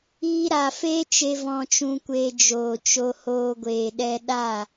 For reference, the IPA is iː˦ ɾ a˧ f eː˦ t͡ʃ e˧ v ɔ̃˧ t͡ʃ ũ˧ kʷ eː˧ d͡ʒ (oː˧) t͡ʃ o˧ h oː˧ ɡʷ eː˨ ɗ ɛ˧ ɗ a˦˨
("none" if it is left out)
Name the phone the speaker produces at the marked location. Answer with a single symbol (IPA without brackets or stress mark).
oː˨